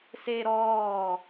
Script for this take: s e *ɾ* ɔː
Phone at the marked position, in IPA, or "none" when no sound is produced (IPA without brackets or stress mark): ɾ